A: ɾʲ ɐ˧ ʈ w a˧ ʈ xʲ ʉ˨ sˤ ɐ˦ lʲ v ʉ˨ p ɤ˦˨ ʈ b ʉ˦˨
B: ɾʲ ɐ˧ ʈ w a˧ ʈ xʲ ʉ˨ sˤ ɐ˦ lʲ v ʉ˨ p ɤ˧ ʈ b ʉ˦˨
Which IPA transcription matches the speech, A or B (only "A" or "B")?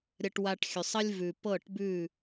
A